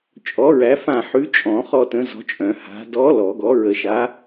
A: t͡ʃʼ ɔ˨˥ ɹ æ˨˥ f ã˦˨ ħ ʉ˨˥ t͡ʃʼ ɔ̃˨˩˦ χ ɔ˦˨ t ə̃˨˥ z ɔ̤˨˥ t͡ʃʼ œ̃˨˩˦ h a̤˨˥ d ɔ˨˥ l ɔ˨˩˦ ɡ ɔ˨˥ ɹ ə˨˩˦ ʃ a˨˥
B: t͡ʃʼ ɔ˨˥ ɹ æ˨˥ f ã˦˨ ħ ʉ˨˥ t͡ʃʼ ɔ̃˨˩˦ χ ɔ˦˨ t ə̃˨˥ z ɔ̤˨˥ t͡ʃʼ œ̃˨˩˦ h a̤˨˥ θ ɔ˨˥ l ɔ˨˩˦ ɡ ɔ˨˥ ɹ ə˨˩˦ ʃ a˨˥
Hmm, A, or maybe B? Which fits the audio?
A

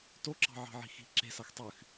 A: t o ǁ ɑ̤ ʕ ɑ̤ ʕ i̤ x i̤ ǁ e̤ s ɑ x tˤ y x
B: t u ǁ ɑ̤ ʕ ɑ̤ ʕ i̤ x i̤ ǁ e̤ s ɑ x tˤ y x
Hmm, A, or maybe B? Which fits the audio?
A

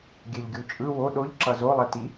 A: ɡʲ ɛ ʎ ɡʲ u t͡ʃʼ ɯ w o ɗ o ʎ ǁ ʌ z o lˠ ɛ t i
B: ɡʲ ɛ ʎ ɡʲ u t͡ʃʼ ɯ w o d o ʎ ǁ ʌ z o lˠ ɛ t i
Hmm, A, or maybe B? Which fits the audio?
A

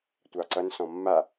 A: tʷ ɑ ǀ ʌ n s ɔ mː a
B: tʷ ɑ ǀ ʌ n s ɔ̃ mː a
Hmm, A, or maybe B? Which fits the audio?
B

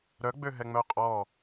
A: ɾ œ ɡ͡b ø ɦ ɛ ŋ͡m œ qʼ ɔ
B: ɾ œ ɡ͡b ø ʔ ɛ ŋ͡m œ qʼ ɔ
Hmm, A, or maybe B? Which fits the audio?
A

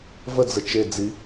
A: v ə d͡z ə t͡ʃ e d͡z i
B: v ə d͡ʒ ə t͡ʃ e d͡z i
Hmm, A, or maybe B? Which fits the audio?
A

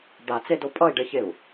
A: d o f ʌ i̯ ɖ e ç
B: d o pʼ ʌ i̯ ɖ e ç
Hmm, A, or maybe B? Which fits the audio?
B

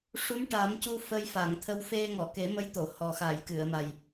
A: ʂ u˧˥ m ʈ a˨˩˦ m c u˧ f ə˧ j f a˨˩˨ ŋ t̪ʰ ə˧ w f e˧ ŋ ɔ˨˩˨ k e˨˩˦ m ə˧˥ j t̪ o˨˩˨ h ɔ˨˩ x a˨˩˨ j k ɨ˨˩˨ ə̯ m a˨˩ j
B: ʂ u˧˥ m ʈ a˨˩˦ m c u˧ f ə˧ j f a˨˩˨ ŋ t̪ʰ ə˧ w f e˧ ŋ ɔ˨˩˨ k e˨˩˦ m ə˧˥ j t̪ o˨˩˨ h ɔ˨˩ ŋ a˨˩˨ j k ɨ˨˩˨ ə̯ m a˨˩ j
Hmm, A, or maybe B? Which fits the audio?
A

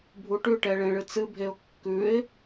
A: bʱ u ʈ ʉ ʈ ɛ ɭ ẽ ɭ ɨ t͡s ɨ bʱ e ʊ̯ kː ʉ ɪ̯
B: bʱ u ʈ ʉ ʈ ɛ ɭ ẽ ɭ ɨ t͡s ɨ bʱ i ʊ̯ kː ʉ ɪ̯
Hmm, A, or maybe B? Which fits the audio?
A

